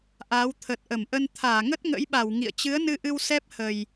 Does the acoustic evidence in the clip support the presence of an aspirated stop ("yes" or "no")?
yes